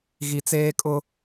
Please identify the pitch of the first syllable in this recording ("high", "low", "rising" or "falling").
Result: low